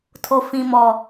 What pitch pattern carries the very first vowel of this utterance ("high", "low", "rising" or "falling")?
low